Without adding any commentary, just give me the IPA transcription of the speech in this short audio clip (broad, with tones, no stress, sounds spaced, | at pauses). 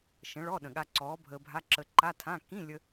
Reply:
ʃ ə̃˨˥ ɭ ɔ˧˥˧ ɗ ə̃˨˩ ɠ a˧ ǀ ɔː˨˥ bʱ əː˧ bʱ a˧˥˧ ǁ ə˧ ǃ a˧˥˧ tʰ ã˧˥˧ k ĩ˧˥˧ lʲ ə˧